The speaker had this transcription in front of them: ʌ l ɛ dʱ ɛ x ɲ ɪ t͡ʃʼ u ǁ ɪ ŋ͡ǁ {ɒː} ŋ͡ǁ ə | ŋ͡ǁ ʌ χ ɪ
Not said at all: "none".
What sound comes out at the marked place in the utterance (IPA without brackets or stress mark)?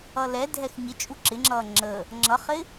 ʌː